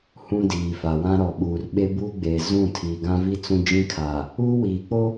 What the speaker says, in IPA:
h ũ˦ d iː˨ f a˨ w ã˦ ɾ ɔ˨ ɓ uː˨ r ɓ e˦ b uː˦ ɡ͡b eː˨ z ũ˦˨ tʰ iː˨ ɡ ã˦ v i˦ t͡s ũ˦ d͡ʒ ĩ˦ kʰ a˨ | uː˦ w iː˨ k͡p o˦

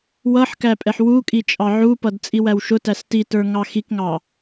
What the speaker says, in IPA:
w ʌ ħ k æ pʼ ɛ ħ w u kʼ i t͡ʃʼ ɑ ʕ u p ʌ d t͡sʼ i w æ w ʃ ʊ t æ s t i t ə˞ ŋ ɑ x i k ŋ ɑ

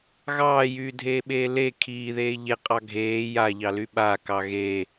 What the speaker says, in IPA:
ɣ ɑː j yː dʱ eː ɓ eː l e kʰ iː ð eː ʎ e qʼ ɑ ɡʱ eː j a ʎ ɑ l y ɓ a k ɑ ɣ eː

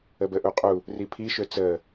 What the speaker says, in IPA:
ə b ə ʔ u qʼ u | r i pʰ i ʃ ø t͡s ə

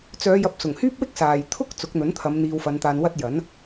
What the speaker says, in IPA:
t͡s œː˨˧ j ɐ˨˥ p̚ s ʊ˨˩ ŋ h yː˥ p̚ w ɪ˥ k̚ s aː˨ j t̪ʰ ʊ˥ k̚ t͡s ʊ˨˥ k̚ n̪ ɵ˨˥ n t̪ʰ ɐ˨˧ m n̪ iː˧ w f ɐ˨˧ n t̪ aː˧ n w ɐ˥ t̚ j ɐ˨˥ n

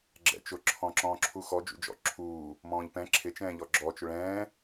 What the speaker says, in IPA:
ɡ͡ǁ ɛ̰ t͡ʃ ʊ ǁʰ ɔ̃ ǁ ɔ̃ː ǁʰ u x ɔ d͡ʒ ṵ d͡ʒ ɔ̰ ǁʰ uː | m ɔ̃ː ʎ p ɛ̃ ǁʰ ɪ t͡ʃ ɛ̃ː ʎ ɔ ɡ͡ǁ ɔ t͡ʃ ʊ ɭ ɛ̃ː

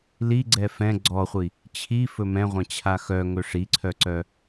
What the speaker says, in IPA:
l i ɡ͡ǀ ɛ f ɛ̃ ɡ͡ǀ ɔ χʷ i | t͡ɕʰ i f ɵ m ɛ̃ ʁʷ ɛ̃ t͡ɕʰ a x œ ŋ ɵ ʂ i ǀʰ œ ǀ œ

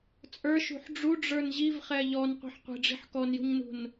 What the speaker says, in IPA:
t͡sʼ ə˞ ʃ ṳ ħ ɖ͡ʐ u ɖ͡ʐ ə˞ n ʑ i v χ ɛ ʎ ɔ n qʷ ɛ̤ ħ qʷ i̤ ɖ͡ʐ i̤ ħ k ɔ n j ṳ ɲ n ṳ n

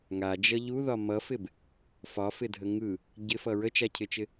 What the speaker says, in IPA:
ŋ a d͡ʒ ʌ ʎ u ð ɒ m ʌ f ɪ b | f ɒ f ɪ dʱ ə ŋ ɯ | ɟ ɪ f ʌ ɹ ə t͡ʃ a cʰ ɪ t͡ʃ ɪ

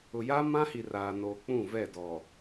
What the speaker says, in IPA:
ʊ˨ j aː˦ m ã˦ h i˨ r aː˨ n oː˨ k͡p ũ˦˨ v ɛ˦˨ d ɔ˨

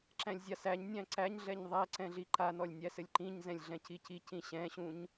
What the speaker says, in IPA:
ǁ æ̃ lʲ zʲ a s æ ɲ nʲ æ̃ ǀ æ ɲ ɮ ɛ ɲ ðˤ æ ǀ ɛ̃ ɮ i ǃ a n ɔ lʲ nʲ æ s ɘ lʲ ǃ ĩ ɲ z ɛ̃ lʲ ɮ ɛ̃ c i c i c ĩ ɕ ɛ̃ ɕ ũ ɲ

